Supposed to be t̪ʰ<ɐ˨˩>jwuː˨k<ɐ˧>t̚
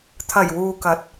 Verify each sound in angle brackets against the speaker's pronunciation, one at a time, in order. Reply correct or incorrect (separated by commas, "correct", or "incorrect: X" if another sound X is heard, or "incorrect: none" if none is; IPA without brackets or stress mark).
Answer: correct, incorrect: ɐ˨˥